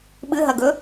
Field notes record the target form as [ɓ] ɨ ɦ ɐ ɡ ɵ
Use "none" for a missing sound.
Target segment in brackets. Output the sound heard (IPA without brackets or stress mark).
ɓ